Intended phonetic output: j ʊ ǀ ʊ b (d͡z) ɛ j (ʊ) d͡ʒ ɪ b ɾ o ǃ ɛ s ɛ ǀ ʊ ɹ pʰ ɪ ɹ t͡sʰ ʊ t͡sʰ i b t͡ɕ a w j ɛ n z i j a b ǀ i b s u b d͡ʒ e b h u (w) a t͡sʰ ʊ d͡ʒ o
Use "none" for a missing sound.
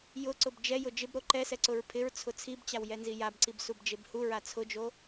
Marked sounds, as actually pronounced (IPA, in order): d͡ʒ, ʊ, ɹ

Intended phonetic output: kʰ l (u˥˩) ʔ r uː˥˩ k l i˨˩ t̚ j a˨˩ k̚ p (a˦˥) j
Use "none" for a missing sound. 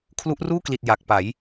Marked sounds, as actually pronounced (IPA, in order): u˦˥, a˩˦

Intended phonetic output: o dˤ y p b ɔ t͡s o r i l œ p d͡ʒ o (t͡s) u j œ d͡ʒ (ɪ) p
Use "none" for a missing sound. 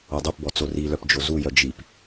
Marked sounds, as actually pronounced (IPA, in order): z, i

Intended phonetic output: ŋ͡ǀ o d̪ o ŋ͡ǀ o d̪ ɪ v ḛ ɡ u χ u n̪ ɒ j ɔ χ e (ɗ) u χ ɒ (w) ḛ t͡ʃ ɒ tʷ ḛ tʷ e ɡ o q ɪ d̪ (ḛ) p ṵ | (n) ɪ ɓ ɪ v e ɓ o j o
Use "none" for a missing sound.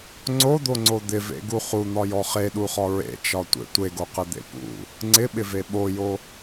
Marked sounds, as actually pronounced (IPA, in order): ɗ, ɹ, ḛ, ŋ͡ǀ

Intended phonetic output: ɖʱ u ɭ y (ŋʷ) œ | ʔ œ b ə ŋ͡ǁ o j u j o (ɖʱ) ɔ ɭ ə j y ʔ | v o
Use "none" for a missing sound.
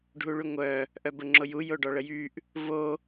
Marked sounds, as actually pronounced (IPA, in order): ŋʷ, ɖ

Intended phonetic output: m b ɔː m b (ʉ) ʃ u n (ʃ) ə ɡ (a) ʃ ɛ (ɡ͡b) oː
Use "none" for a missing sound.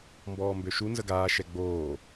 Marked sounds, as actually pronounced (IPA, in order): ø, z, aː, ɡ͡b

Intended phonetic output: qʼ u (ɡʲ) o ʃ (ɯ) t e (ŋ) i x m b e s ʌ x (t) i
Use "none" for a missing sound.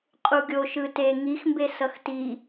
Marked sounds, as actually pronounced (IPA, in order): ɡʲ, ɯ, ŋ, t

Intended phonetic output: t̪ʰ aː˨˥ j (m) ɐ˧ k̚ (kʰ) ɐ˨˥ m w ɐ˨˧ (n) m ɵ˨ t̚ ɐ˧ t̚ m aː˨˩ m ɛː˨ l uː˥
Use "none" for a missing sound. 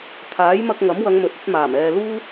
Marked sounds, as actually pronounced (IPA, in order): m, ŋ, ŋ

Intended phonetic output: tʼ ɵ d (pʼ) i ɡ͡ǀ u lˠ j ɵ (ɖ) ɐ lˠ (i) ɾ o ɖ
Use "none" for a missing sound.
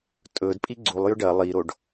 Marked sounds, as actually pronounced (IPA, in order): pʼ, ɖ, i

